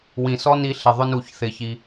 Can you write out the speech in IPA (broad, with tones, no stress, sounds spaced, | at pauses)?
w ĩ˨ s ɔ˦ n i˧ ɬ ɪ˨ ðˤ ʊ˧ n u˨ ç θ ɪ˧ ç i˧